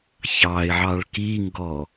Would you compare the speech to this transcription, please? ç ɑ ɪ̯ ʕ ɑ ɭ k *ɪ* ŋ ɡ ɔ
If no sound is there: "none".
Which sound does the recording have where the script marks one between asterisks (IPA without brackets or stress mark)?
i